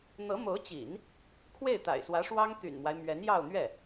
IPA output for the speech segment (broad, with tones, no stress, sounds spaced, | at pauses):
n̪ ɤ˧˥ m o˧˥ ʊ̯ t͡ɕ ḭ˨˩˦ n | kʰ w e˥˩ ɪ̯ t̪ a̰˨˩ ɪ̯ s w ä˧˥ ʂ w ɑ˥ ŋ t̪ y̰˨˩ n m w a˦ ɪ̯ m ɥ ɛ˧˥ n j ɑ˥˧ ʊ̯ n̪ ɥ ɛ˥˩